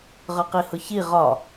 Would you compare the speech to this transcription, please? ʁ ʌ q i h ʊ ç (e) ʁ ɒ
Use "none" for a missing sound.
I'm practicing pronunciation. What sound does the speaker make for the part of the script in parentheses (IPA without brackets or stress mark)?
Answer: i